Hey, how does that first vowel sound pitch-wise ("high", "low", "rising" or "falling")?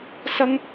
high